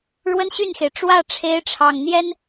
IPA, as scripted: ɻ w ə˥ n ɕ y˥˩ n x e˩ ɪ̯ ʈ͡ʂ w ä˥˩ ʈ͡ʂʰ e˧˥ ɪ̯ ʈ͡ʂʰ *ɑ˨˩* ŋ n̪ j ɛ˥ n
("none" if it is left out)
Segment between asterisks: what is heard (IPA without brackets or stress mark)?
ɑ˨˩